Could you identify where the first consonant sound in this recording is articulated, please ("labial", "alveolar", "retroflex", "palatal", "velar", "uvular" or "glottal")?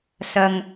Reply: alveolar